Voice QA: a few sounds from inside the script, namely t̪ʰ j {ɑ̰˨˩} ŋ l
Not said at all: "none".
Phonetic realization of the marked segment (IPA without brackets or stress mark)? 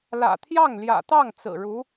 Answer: ɑ˥˩